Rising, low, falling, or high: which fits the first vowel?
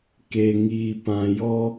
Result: low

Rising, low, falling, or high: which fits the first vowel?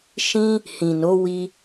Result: high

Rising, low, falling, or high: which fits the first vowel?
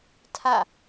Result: falling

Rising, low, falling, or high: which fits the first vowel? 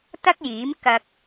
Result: high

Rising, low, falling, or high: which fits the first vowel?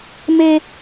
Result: high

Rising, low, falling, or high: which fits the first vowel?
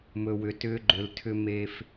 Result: low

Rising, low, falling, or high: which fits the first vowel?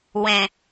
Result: low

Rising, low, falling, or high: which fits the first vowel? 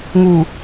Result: low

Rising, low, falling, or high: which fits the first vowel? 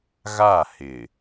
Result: falling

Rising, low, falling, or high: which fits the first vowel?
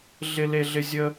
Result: high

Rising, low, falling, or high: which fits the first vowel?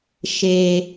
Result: low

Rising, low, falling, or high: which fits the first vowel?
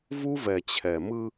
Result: high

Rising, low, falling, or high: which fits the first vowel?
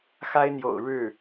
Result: high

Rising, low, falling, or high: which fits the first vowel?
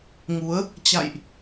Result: rising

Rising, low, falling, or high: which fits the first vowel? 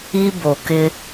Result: high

